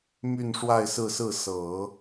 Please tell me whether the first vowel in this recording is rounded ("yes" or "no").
yes